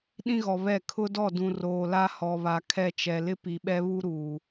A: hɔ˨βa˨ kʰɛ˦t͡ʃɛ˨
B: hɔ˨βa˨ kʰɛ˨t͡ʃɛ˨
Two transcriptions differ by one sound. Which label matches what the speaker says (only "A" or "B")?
A